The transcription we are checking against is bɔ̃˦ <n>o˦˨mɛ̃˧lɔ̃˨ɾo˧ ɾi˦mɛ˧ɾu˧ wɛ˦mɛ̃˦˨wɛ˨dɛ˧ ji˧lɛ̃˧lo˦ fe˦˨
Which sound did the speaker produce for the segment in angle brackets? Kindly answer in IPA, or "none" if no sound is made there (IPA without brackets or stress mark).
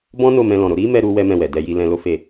n